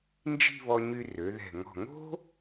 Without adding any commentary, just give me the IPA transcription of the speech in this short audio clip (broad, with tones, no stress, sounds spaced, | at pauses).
n d͡ʒ i̤˥˧ β ɔ˧ ɲ y˧ r ø˩˧ ð ɛ̤˧˩ ŋ ɔ̤˧˩ ŋ o̤˥